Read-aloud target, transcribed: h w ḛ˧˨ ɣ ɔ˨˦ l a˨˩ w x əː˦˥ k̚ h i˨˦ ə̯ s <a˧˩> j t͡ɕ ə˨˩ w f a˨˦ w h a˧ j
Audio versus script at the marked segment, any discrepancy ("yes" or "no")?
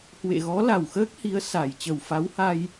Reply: no